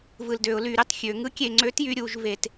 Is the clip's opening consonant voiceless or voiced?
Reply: voiced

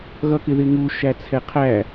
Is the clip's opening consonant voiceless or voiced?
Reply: voiced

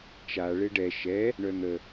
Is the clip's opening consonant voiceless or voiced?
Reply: voiceless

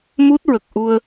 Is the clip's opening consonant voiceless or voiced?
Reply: voiced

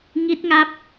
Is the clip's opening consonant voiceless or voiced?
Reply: voiced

